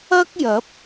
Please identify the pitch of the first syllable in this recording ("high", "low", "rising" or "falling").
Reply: high